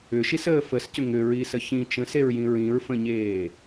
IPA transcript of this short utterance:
ʏ ʃ i s əː f ə s c ʏ ŋ ʏ ɹ i s ə ç ĩ t͡ʃ ə̃ s e ɹ j ĩ ɹ ĩ ɹ f ə̃ ɲ eː

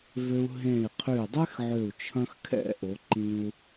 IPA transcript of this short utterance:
v ø˧ u̯ ɦ ẽ˧˩ i̯ qʰ y˧˩ dˤ ɛ˥ x ʕ ø˧˩ u̯ t͡ʃʰ ɐ̃˧ x kʰ ɛ̰˥˧ ʔ o˩˧ ǃ ĩ˧ u̯

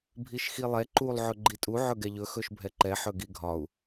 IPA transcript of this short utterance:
bʱ i ʃ x i lˠ ɛ ǃ u lˠ ʕ ɵ ɡ͡ǃ i tʼ u ʕ ɵ ɡ ɛ ʎ ɵ x ɵ ʃ bʱ ɛ ǃ ɛ ħ ɵ ɡ i ɡʱ ɒ u̯

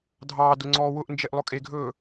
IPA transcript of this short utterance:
dʱ ɑː d ʊ ŋ͡ǀ ɔː w ʊ ʔ n d͡ʒ e ʔ lˠ ʊ kʼ e ɡʱ ɵː

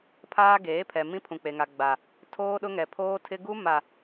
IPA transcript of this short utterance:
pʰ aː˦ ɡ eː˨˦ pʰ ɛ˨ m ĩ˦ pʰ ũ˨ k͡p e˨ ŋ a˨ ɡ͡b a˨ | tʰ oː˦ ɗ ʊ˦ ŋ ɛ˨ pʰ oː˦ tʰ ɪ˦ ɡ u˦ m a˨

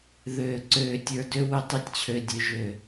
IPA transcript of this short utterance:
ð øː˨ ǀ øː˨ tʲ ə˞˨ d ø˧ w ʏ˦ tˤ i˦ tʲ t͡ɕʰ ø˧ dʲ ø˧ ʒ ø˨

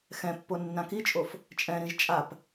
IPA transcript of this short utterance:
x ɛ̃ pː o nː ã k i t͡ʃʼ o f | t͡ʃʼ ɛ̃ ɾ ĩ ʒ t͡ʃʼ a p

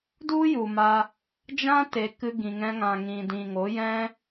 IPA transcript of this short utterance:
d u˦ j u˨ m a˧ | d͡ʒ ã˦ t e˨ k ɨ˧ ɡ ĩ˨ ŋ ɛ̃˧ ŋ ã˨ ŋ ĩ˨ d ĩ˨ ŋ o˨˦ j ɛ̃˦

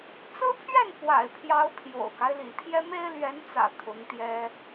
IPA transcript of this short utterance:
t͡s ɹ̩˥ pʰ ɥ ɛ˥˩ n p w a̰˨˩ ɪ̯ pʰ j ɑ˧˥ ʊ̯ pʰ j o̰˨˩ ʊ̯ k a˦ ɪ̯ l ḭ˨˩ t̪ʰ j ɛ˥ m e˥ ɪ̯ l ɥ ɛ˧˥ n t͡s ä̰˨˩ t̪ʰ ʊ˧˥ ŋ t̪ j ɛ˥

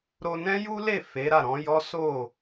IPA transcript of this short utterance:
ɾ o˧ n ɛ̃˦ j u˦ l e˦˨ f e˨˦ ɾ a˦˨ ɾ ɔ̃˨˦ j ɔ˦ s o˦˨

